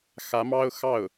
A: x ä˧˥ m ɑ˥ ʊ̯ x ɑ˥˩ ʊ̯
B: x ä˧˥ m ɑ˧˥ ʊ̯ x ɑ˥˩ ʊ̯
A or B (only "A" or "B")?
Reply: A